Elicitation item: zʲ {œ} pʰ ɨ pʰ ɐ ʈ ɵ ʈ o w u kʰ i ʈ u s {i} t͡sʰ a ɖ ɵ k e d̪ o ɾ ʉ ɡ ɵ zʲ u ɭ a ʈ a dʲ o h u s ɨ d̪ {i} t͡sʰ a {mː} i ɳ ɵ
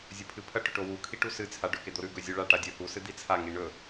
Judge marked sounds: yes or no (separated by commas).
no, no, yes, no